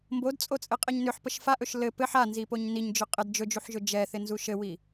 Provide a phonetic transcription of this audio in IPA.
m b o d t͡sʼ o t͡sʼ ɘ qʼ ɛ ɲ n ʏ ħ p ə ʃ f a ʔ ɵ ʃ l ɘ p ɘ ħ a n z i p o ɲ n i ɲ d͡ʒ ʏ qʼ ɘ d d͡ʒ ɵ d͡ʒ u ħ ʒ ɵ d͡ʒ ɛ θ ɪ n z u ʃ ɘ w i

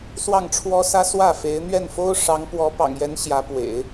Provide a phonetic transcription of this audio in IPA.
s w ɑ˥˩ ŋ ʈ͡ʂʰ w ɔ˥ s ä˥ s w ä˥˩ f e˧˥ ɪ̯ n̪ ɥ ɛ˥˩ n f o˥ ʊ̯ ʂ ɑ˧˥ ŋ p w ɔ˧˥ p ɑ̰˨˩ ŋ j ɛ˧˥ n ɕ j ä˧˥ p w ḛ˨˩˦ ɪ̯

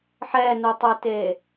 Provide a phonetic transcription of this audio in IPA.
ħ ɛ n u tˤ ɨ t e

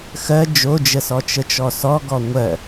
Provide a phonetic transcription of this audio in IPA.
x ɜ d͡ʒ o d͡ʒ ə s ɔ t͡ʃ ə t͡ʃ ɔ s ɔ ɡ ɔ ŋʷ ɜ

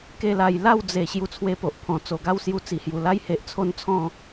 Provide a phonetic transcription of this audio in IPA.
k e˥˧ l a˧ j l a˥˧ w d͡z e˨˩ ɕ j u˧ t͡sʰ w e˧ p o˨ ʔ pʰ ɔ̃˨˩ t͡s o˨˩ ɡ a˥˧ w s j u˧ t͡s i˨˩ h j u˨˩ l a˦ j h e˨ ʔ t͡sʰ o˦ n t͡sʰ ɔ̃˥˧

